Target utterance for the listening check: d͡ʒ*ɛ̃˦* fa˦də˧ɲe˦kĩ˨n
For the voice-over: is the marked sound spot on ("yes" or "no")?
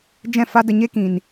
no